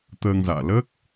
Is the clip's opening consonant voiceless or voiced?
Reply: voiceless